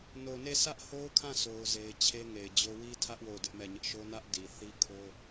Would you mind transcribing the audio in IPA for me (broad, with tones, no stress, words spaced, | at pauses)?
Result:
no˨ne˦˨ sʰä˦ʔho˦ʊ̯kʰã˦˨ sʰo˦ʊ̯ze˦ɪ̯ t͡ɕʰe˦ ŋe˨ɪ̯d͡ʑo˦ wi˦tʰä˦ʔ wo˦˨ʊ̯dɪ˦ʔmɛ˦˨ɲɪ˦ʔ ʃo˦nä˦ʔ di˨ θi˦kʰo˦